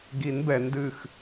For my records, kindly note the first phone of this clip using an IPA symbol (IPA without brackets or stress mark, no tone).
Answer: ɡ